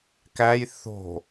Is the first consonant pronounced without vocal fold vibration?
yes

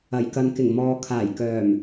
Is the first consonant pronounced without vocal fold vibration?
no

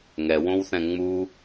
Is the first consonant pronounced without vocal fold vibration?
no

